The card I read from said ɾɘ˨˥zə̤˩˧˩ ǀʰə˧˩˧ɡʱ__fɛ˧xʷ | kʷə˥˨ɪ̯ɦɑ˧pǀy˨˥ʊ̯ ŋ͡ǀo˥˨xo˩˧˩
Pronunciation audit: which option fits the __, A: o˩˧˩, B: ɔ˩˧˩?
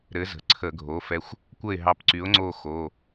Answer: A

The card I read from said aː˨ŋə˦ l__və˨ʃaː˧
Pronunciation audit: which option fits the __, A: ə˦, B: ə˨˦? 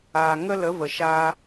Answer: B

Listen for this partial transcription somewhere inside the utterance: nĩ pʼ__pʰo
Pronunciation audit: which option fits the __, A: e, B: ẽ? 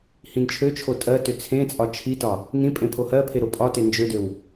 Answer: B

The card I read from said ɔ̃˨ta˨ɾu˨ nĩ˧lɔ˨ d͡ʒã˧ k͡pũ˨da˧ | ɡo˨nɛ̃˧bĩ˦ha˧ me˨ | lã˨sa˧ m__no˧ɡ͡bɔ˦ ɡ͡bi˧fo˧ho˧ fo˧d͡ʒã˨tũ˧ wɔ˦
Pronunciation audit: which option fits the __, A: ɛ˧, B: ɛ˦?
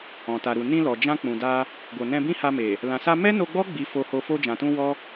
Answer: B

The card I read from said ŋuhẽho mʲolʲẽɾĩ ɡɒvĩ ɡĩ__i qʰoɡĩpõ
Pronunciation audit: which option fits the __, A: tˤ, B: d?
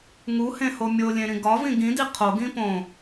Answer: B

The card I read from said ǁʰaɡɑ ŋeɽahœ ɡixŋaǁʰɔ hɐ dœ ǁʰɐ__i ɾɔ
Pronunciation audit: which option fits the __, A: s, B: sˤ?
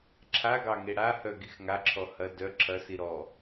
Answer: A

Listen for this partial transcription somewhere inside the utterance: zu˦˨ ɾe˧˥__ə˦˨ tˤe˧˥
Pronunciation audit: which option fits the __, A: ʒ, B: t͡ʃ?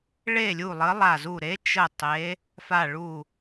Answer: B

